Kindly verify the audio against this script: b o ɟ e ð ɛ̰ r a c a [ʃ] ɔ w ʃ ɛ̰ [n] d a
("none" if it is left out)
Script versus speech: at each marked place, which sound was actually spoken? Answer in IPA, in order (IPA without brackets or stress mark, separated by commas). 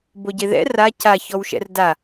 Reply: ç, r